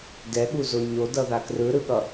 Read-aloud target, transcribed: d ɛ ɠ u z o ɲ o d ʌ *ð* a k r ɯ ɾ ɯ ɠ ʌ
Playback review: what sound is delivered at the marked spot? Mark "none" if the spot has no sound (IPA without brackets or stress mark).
ð